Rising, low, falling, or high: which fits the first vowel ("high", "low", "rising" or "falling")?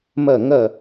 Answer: falling